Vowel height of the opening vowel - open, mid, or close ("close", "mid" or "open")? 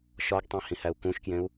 open